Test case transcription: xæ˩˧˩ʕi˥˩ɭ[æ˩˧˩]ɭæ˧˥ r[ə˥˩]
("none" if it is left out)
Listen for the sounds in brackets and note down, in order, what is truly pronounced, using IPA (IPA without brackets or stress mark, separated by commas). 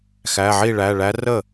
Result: æ˩˧˩, ə˥˩